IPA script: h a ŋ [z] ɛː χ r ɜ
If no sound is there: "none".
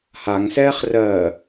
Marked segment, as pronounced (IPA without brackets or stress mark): s